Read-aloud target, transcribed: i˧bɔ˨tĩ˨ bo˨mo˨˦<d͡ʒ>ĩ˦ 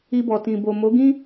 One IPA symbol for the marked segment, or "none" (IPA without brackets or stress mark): ɡ